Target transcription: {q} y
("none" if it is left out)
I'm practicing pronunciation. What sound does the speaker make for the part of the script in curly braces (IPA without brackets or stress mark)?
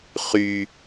χ